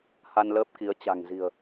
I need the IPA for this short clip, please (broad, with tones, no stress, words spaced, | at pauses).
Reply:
ha˧nləː˦˥p̚ki˨˦ə̯ t͡ɕa̤˨˩ŋzi̤˨˩ə̯